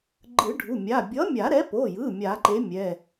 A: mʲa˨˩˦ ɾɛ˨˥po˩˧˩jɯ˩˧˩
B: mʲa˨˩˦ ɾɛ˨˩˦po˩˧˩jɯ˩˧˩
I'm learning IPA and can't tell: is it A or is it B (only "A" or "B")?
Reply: A